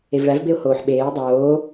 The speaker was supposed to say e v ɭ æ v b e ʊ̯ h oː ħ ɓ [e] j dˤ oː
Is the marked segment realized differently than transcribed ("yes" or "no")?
yes